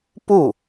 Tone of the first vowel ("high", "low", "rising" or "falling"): falling